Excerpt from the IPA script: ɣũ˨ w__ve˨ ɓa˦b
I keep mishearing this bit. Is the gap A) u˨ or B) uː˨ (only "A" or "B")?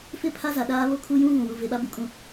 A